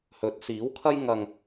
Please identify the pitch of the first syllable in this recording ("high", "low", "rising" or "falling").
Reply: rising